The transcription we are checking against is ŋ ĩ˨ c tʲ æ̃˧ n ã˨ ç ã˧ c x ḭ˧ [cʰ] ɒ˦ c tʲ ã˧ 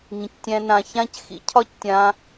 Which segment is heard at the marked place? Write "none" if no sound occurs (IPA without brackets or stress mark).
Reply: cʰ